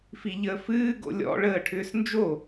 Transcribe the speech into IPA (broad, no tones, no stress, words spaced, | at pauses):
fiʎəːfɨː ɡo̰lʲɔ̰ ɭəːʈʰʏːsnd͡ʒo